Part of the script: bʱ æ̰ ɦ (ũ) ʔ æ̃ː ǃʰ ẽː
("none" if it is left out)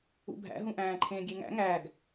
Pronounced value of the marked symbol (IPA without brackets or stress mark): ũ